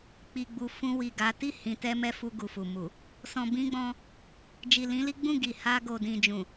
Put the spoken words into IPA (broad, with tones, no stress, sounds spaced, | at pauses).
k͡p i˨ ɡ͡b u˨ f ũ˧ w i˨ ɡ a˨˦ t i˦˨ h ĩ˨ t ɛ˧ m ɛ˦ f u˧ ɡ u˨ f u˨ m u˨ | s ɔ̃˨ b ĩ˧ ɡ͡b ɔ̃˧ | d͡ʒ i˨ l ĩ˨˦ l i˦ ɡ͡b ũ˦˨ ɡ i˨ h a˧ ɡ o˨ d ĩ˨ d͡ʒ ũ˨